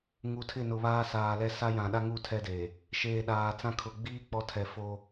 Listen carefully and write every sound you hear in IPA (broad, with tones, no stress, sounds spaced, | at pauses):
ŋ u˨ tʰ ɪ˦˨ n ʊ˨ β aː˦ s aː˨ l ɛ˦ s a˦ j ã˨ ɗ a˦ ŋ u˦˨ tʰ ɛ˦ d eː˨ | ʃ eː˨ ɗ aː˨ t͡s ã˦ kʰ ʊ˨ ɡ͡b iː˦ k͡p ɔ˨˦ tʰ ɛ˨ f o˦